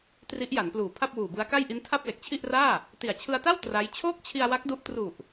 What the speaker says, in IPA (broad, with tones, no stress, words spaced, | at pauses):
tri˦˥ʔja˩˦npluː˨˩ pʰa˥˩p̚wuː˨˩bɯ˦˥a̯ka˥˩j ʔi˦˥ntʰa˥˩p̚ le˨˩k̚t͡ɕʰi˥˩ʔraː˥˩ | ti˨˩a̯t͡ɕʰɯ˧a̯ta˥˩w tra˦˥j t͡ɕʰoː˥˩k̚t͡ɕʰi˧a̯wa˦˥k̚du˦˥ʔ tru˨˩ʔ